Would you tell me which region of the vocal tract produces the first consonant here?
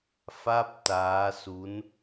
lips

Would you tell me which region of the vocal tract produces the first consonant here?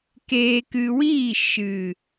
velum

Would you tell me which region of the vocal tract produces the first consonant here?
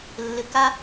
tongue tip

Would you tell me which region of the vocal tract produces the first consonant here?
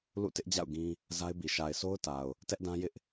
tongue tip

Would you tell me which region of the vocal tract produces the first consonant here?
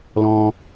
tongue tip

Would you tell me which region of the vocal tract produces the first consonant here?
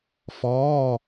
lips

